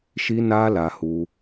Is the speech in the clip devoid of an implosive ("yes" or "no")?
yes